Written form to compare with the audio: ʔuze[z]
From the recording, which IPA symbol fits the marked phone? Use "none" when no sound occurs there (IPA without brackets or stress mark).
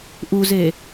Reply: none